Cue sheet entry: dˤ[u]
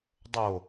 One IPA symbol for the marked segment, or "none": o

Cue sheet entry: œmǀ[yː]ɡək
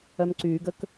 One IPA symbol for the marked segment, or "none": yː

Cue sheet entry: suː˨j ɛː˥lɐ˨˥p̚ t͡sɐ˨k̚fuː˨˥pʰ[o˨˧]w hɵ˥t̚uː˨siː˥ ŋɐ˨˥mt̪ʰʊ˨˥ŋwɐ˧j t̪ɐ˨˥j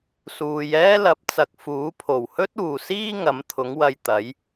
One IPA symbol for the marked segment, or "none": o˨˩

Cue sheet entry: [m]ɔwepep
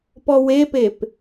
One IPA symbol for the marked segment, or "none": p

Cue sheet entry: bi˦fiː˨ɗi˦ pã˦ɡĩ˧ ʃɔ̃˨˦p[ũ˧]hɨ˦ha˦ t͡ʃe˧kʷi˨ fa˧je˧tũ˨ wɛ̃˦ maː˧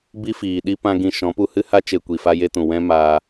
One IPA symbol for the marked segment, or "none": u˧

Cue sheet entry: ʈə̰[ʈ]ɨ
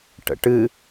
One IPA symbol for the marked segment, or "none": ʈ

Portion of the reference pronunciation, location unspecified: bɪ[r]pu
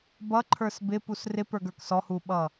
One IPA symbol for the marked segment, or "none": none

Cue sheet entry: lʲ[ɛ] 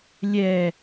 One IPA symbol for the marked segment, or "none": ɛ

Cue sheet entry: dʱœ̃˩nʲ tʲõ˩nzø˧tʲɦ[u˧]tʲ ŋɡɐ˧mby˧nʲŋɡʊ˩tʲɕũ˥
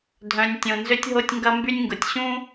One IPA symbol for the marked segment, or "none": o˧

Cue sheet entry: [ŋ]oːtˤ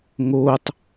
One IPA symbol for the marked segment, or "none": ŋ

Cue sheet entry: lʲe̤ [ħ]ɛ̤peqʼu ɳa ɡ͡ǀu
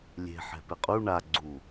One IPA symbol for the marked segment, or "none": ħ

